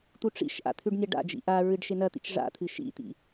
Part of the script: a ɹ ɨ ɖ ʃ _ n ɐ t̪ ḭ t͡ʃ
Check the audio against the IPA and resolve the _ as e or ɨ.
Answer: e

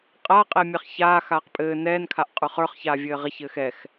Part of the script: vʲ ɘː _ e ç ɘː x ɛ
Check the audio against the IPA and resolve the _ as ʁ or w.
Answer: ʁ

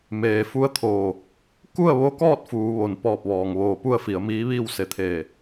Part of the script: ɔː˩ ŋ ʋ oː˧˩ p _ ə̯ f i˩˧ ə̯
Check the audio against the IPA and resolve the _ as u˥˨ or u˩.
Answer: u˥˨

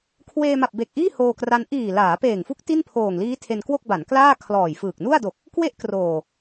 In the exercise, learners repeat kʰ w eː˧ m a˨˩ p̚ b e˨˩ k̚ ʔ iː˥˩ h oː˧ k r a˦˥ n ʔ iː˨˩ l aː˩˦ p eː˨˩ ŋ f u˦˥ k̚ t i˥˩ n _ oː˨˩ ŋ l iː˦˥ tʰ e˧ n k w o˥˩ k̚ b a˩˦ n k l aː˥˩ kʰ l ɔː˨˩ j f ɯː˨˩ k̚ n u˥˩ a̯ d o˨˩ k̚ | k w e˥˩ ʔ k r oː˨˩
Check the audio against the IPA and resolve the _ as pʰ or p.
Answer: pʰ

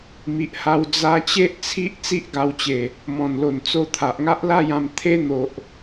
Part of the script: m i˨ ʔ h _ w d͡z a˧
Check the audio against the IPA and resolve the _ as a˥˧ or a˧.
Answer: a˧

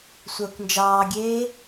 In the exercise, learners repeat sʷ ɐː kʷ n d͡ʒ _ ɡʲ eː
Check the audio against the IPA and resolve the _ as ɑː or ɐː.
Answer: ɑː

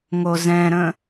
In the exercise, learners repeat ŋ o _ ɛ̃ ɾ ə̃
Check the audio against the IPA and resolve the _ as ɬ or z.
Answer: z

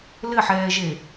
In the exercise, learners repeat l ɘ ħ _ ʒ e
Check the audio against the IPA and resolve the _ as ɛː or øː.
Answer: ɛː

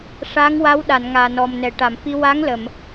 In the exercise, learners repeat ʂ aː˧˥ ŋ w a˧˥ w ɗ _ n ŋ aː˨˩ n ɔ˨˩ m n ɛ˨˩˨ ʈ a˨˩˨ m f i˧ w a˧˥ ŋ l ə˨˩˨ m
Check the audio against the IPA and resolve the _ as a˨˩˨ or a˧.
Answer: a˨˩˨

